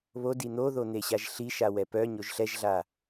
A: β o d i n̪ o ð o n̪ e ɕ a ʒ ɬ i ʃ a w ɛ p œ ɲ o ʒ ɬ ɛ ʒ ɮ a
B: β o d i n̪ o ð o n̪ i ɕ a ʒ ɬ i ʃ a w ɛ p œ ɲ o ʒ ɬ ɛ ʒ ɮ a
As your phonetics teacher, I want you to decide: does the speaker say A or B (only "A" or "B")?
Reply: A